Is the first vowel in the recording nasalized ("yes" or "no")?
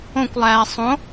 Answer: yes